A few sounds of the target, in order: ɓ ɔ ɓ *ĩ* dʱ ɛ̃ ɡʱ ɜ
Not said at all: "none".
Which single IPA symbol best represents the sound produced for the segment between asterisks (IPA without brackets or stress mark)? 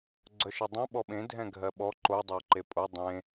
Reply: ẽ